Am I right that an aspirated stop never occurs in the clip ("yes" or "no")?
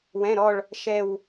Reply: yes